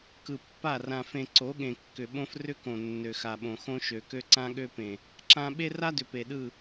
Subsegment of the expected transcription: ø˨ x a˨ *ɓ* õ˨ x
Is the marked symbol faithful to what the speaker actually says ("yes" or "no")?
yes